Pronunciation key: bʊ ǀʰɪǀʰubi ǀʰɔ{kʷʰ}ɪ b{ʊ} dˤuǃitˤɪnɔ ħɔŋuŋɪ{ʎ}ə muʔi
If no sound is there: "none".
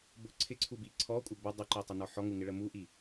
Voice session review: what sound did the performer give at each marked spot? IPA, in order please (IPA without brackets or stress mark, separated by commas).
kʷʼ, ʊ, ɭ